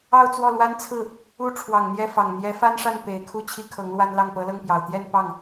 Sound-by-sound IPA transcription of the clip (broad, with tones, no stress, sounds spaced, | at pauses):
ɑ˥˧ ʊ̯ t͡s w ɔ˥˩ l w a˥ n t͡sʰ ɹ̩˥˩ | u˥ ʈ͡ʂʰ w ɑ˨˩ ŋ n̪ j ɛ˥˩ f ɑ˨˩ ŋ n̪ j ɛ˧˥ f a˥ n ʂ a˥˩ n p e˨˩ ɪ̯ kʰ u˥˩ t͡ɕʰ i˥ kʰ ɤ˧˥ ŋ l w a˥ n l ɑ˥˩ ŋ p ɤ˧˥ l ɤ˥˩ ŋ p j ɑ˨˩ ʊ̯ t̪ j ɛ˥˧ n p ɑ˥˩ ŋ